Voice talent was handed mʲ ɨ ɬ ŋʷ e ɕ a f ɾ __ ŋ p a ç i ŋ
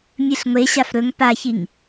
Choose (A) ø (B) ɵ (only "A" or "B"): B